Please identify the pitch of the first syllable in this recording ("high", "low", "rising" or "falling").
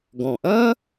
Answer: low